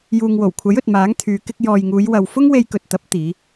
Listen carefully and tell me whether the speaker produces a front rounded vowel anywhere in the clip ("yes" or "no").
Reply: yes